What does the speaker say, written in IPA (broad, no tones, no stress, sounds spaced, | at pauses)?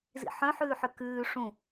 z ḭ ħ œ̃ ħ ʉː ħ ʏ k ʉː ʂ ũ